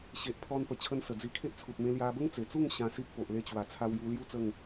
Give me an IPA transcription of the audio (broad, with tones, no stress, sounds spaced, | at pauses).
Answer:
ɕ e˨ ʔ pʰ ɔ˧ n p ə˨˩ t͡ɕʰ ə˧ n s ə˨˩ d͡z i˧ kʰ e˦ ʔ t͡sʰ u˨ t̚ m ẽ˧ l j a˧ b ə˦ ŋ t͡s e˨˩ t͡s u˥˧ ŋ ɕ ã˧ s i˦ ʔ p o˨ ʔ l e˥˧ t͡ɕ w a˨˩ t͡sʰ a˧ w j u˧ l j u˥˧ t͡s ə˥˧ ŋ